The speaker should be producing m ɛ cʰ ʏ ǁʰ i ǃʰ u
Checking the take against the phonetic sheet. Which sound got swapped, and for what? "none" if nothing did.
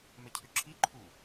none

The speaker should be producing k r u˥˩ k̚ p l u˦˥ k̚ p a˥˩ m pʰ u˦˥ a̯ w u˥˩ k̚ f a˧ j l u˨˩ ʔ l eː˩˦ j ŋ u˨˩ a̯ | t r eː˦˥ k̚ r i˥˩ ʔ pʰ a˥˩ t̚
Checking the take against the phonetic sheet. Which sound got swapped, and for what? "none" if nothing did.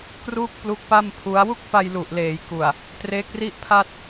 ŋ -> k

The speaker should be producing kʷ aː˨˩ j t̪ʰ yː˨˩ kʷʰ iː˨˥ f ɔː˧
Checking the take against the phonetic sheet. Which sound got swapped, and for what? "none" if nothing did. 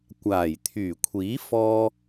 none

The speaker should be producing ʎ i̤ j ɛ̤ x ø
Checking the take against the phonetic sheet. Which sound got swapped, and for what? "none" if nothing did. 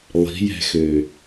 ʎ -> lˠ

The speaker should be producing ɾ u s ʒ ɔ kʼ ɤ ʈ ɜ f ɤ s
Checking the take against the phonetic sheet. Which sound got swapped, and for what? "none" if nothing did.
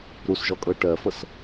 none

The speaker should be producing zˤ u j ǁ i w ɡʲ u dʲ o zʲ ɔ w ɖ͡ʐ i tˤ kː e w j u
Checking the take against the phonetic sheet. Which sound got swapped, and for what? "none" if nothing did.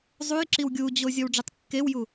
dʲ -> d͡ʑ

